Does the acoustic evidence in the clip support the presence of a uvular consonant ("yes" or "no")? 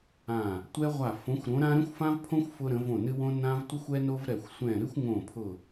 yes